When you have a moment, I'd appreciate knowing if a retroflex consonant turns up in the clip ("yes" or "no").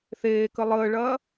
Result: yes